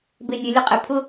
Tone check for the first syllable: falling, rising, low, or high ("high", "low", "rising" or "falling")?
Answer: low